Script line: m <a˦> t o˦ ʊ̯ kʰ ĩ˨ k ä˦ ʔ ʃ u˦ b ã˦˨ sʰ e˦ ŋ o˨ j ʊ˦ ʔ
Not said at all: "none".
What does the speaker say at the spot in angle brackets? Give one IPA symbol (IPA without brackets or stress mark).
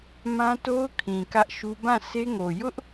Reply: ã˦